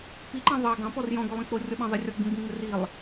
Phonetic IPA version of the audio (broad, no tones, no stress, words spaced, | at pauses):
piǃɑ̃ ðˤɑ ɡɑ̃pɔr jɔ̃ɡolˠĩ k͡porʲɔɓɑ̃ðˤɪ rʲɔɡ͡bĩ ɡ͡bĩŋ͡mɪrilˠ